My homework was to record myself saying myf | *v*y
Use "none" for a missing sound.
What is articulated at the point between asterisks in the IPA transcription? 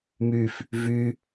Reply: v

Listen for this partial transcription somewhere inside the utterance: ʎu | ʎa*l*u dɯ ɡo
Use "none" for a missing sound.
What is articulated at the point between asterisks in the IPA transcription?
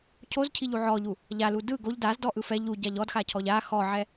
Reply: l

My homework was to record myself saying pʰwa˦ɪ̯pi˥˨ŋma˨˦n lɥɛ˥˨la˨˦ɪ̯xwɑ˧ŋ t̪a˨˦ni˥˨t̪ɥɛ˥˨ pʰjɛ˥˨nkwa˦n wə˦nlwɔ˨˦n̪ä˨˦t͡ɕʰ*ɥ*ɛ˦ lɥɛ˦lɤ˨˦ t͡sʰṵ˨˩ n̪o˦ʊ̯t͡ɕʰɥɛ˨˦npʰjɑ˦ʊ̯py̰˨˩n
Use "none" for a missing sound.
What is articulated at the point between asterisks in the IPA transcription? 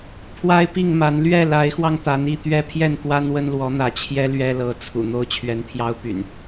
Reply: j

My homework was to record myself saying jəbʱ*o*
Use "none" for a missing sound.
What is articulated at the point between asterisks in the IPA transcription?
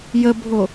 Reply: o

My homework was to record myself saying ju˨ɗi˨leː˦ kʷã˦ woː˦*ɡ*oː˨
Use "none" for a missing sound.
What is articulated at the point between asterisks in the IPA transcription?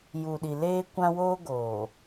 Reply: ɡ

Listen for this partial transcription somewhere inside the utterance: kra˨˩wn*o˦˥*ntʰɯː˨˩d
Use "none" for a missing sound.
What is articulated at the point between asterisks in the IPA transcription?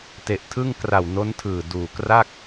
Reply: o˦˥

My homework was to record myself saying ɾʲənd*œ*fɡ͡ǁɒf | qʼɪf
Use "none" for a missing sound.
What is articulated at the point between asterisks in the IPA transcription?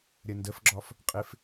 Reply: ə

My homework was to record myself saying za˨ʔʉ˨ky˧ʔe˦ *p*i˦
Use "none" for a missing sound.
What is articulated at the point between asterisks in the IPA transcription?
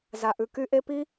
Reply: p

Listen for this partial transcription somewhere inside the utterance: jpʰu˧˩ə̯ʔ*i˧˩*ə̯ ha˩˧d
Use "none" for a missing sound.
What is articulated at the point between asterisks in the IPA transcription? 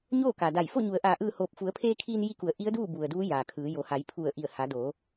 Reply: i˧˩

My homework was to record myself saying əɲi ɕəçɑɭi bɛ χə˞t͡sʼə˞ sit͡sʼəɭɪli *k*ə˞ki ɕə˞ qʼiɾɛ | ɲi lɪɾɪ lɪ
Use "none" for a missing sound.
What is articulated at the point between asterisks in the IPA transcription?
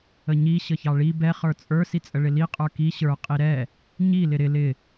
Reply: qʼ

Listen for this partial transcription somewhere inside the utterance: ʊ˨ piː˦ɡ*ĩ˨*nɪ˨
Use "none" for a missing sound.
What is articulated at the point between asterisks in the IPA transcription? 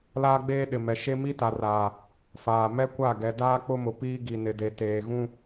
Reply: i˨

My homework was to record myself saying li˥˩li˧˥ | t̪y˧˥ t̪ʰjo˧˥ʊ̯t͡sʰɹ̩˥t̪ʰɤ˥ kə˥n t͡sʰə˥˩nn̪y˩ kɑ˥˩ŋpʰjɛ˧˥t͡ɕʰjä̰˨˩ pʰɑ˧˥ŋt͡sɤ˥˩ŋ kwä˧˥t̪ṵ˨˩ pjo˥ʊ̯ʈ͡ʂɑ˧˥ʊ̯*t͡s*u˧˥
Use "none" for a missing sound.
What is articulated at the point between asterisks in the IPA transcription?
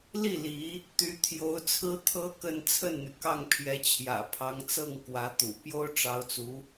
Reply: t͡s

